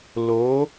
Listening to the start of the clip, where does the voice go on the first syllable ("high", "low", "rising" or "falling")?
rising